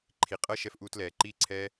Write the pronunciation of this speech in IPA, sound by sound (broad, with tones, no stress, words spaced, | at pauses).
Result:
ǃʰi˨qʼɤ˦ ʃɛ˧fʔuː˧tlɛː˨ ǃiː˦ǀʰɛː˦